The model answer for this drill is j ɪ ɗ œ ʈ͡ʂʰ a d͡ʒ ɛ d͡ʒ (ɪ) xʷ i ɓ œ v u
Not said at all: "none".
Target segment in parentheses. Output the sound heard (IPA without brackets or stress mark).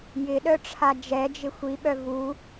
ɪ